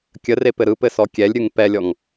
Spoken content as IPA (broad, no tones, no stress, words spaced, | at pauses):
kʲər epɘɾɯpɘ sɔkʲɛlʲɾʲɯŋ pɛlʲɔŋ